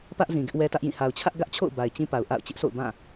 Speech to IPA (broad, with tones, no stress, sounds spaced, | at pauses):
p ä˦ ʔ z ĩ˨ ɡ ɪ˦ ʔ w ɛ˦ t ä˦ ʔ j ĩ˦˨ h a˨ ʊ̯ t͡ɕʰ ä˦ ʔ ɡ ä˦ ʔ t͡ɕʰ o̰˦˨ ʊ̯ b a˨ ɪ̯ t͡ɕ ĩ˦ p a˨ ʊ̯ ʔ a̰˦˨ ʊ̯ t͡ɕ ɪ˦ ʔ sʰ o̰˦˨ ʊ̯ b ã˦˨